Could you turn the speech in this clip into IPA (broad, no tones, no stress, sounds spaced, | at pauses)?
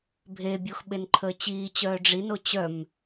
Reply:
bʱ e bʲ o x ɓ e n ǃʰ əː t͡ɕ iː t͡ɕ œː ɖ͡ʐ i n o t͡ɕ œ m